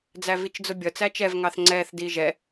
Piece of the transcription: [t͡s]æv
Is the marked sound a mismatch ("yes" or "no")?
yes